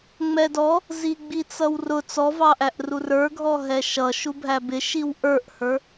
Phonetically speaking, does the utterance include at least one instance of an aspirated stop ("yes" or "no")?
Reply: no